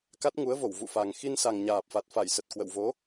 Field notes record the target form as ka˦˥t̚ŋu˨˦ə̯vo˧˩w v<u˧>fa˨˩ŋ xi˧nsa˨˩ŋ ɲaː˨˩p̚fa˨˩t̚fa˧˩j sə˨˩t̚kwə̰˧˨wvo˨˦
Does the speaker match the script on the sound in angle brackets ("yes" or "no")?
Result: no